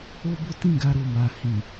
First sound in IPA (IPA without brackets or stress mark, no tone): o